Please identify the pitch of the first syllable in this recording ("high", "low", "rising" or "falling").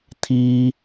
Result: high